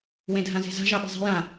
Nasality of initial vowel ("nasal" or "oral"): nasal